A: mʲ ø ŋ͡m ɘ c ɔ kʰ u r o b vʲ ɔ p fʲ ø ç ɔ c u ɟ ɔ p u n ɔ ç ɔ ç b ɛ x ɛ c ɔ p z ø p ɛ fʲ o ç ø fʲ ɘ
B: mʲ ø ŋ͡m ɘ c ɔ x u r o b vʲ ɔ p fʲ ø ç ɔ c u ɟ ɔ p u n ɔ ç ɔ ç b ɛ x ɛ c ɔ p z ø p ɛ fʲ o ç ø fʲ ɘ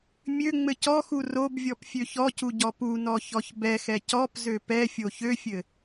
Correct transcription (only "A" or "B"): B